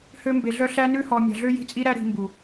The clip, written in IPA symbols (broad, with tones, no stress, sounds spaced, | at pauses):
h ø˦ m b e˧ ɮ œ˦ ɬ æ˦ n ʉ˦ h ɔ˧ mʲ ɑ̤˧ ɮ ø˦ j i̤˦ t͡sʼ i˦ ɾ æ˦ ɾ i̤˧ m b u˨